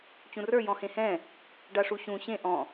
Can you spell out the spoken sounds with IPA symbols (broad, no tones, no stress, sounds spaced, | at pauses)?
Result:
t͡ɕ ũ r ə˞ j ɔ̃ h ẽ h ɛ̃ | ɖ a ʂ u ɕ ũ ɕ ẽ ʔ ɔ̃